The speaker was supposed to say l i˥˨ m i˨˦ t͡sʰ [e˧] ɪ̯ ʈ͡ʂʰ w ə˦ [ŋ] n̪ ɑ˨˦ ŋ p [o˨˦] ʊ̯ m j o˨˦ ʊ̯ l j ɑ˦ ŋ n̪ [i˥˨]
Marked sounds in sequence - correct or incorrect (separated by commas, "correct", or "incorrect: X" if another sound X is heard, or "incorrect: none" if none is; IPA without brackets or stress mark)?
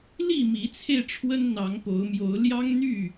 correct, incorrect: n, correct, incorrect: y˥˨